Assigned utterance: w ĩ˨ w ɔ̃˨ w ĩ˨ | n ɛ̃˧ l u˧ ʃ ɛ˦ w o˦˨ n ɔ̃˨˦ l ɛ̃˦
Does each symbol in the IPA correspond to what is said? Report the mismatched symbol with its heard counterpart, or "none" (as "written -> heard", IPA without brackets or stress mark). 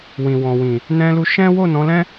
ɛ˦ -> ɛ̃˦